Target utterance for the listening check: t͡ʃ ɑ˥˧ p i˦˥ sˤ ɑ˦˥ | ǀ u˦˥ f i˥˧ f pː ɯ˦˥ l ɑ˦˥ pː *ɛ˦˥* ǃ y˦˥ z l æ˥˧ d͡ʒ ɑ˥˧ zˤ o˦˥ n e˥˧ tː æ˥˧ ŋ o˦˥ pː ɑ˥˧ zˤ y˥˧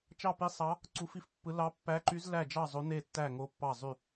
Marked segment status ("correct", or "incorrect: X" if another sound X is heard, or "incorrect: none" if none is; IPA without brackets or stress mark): incorrect: æ˦˥